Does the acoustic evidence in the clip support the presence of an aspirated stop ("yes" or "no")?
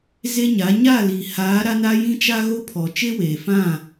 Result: yes